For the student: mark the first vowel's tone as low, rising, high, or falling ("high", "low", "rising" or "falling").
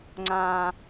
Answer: low